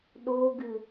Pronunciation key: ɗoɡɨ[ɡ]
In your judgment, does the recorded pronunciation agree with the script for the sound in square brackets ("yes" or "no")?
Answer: no